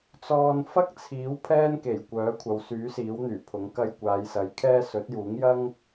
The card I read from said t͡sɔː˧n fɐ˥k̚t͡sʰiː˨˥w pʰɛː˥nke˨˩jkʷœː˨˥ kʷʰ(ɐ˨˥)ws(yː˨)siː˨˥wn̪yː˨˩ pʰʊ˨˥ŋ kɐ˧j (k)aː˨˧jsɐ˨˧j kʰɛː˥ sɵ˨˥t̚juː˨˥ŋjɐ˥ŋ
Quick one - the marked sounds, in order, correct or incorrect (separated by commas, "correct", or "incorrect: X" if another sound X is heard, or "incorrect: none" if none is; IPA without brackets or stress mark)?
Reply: incorrect: ɐ˨, incorrect: yː˨˥, incorrect: kʷ